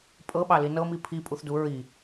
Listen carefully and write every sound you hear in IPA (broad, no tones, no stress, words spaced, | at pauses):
pʼɤɓɑli nɤmi pʰipʼuθdu ɹi